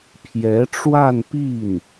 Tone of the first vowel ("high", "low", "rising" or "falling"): rising